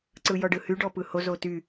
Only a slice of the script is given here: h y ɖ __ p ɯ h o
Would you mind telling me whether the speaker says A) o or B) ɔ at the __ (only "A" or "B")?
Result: B